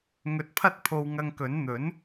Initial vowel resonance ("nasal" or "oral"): oral